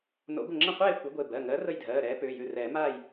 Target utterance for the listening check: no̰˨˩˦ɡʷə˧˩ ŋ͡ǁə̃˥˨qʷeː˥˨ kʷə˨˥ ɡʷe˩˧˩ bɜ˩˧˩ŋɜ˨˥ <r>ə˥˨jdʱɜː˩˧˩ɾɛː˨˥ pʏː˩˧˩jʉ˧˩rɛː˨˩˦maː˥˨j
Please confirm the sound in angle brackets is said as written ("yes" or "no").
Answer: yes